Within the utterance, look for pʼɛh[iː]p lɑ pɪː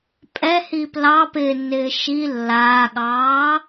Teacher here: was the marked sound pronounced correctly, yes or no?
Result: yes